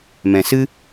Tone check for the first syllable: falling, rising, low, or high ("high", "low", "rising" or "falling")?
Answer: low